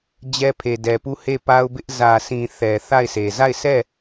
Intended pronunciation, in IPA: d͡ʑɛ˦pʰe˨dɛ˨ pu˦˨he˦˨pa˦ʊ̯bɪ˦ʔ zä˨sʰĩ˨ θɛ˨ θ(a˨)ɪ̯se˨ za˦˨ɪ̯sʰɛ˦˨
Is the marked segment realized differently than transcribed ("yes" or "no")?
yes